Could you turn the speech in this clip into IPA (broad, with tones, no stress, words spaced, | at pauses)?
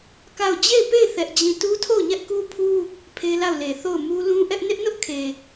ka˦˨ʊ̯ d͡ʑe˦˨ɪ̯pe˦˨ɪ̯ θɛ˦ʔd͡ʑĩ˦˨ tu˦tʰo˦˨ʊ̯ɲɛ˦ʔ ku˦pʰu˦ | pʰe˦la˦˨ʊ̯ le˨ θo˦˨ʊ̯mu˦ lũ˦ʔɛ˦ʔ nɪ˦ʔnʊ˦ʔkʰe˨